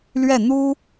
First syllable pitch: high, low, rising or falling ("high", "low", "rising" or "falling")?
falling